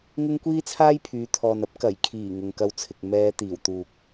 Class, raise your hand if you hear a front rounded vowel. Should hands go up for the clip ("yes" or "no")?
yes